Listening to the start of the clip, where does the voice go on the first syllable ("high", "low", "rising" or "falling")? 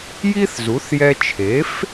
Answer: high